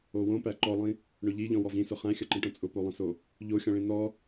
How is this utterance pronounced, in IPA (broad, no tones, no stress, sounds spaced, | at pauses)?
o w õ p æ ǃ ɔ lˠ ĩ | ɳ ʊ ʎ i ʎ ɔ̃ w ɔ v ĩ s ʊ χ æ̃ xʲ ʌ ǃ ĩ ʈ õ t͡sʼ ʊ p o lˠ ĩ s o | ʎ o xʲ ɔ̃ ɭ ĩ n ɔ